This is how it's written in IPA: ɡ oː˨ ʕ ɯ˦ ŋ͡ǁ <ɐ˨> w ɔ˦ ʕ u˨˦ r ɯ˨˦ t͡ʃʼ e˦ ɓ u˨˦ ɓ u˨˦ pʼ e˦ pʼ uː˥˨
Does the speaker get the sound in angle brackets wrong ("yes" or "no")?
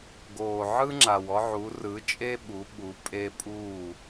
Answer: yes